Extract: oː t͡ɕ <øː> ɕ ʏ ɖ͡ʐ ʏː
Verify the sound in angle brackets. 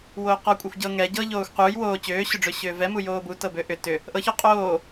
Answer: correct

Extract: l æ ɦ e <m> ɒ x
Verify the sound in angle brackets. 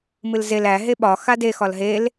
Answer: incorrect: ɓ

